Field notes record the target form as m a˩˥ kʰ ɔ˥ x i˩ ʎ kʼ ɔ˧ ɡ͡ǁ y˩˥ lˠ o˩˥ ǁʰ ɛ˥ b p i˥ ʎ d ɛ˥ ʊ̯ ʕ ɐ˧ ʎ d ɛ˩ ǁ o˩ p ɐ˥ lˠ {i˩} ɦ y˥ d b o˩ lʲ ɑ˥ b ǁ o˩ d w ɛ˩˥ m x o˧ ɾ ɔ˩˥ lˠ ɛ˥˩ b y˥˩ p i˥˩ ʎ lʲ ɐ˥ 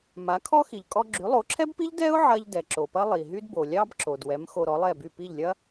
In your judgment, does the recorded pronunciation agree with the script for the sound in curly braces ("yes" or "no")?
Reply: yes